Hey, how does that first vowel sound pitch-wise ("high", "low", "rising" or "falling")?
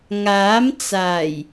rising